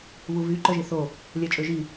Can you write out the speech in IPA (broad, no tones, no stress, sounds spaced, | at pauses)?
β u v y ǃ œ ʒ i θ o | lʲ ɛ t͡ʃʼ ø ʒ i